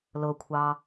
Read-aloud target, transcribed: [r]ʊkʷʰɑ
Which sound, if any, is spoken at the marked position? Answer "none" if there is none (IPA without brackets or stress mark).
l